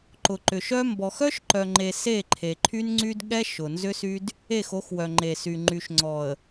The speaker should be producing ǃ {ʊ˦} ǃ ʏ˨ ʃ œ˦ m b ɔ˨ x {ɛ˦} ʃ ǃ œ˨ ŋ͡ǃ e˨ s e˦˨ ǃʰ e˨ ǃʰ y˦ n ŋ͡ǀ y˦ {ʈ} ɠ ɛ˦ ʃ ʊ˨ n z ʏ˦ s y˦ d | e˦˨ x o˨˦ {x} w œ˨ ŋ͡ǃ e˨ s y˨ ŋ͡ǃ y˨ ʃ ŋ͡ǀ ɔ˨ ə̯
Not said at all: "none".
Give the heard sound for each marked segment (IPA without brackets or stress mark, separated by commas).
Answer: ʊ˨, œ˦, d, x